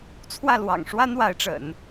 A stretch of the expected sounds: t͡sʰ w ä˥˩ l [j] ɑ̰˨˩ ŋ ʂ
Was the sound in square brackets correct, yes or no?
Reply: no